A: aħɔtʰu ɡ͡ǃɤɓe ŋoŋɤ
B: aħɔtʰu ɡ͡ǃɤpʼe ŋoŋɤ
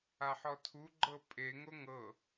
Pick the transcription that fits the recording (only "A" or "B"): B